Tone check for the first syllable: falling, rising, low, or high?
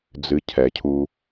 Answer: low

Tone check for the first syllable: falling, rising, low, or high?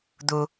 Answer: low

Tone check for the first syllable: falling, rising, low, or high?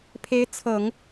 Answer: rising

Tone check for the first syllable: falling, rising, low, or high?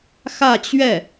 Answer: falling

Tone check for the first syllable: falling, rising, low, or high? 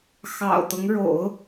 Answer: low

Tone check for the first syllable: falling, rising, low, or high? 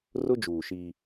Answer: high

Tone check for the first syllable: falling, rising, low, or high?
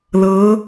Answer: rising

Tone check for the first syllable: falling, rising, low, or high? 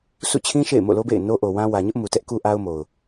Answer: falling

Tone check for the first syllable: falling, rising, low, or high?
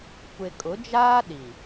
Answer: low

